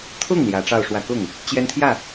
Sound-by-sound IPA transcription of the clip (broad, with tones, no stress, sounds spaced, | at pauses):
t̪ʰ ʊ˥˩ ŋ l j ä˧˥ ʈ͡ʂ ɑ˥˧ ʊ̯ ʂ w ä˥˧ k ʊ˥˩ ŋ | t͡ɕ j ɛ˥ n t̪ʰ j ä˥˩